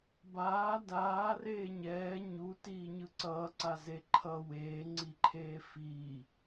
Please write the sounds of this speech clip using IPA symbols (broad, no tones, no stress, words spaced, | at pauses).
baː daː reːɲɛː ɲu tiːɲɯǀʌːǀa zeǃʰʌ weːŋ͡ǀiǃʰeː fi